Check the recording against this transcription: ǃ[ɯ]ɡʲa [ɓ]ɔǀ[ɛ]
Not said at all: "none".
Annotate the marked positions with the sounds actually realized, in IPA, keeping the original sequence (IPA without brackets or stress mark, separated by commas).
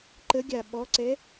ə, ɓ, ɛ